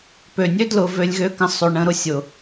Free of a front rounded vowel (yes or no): no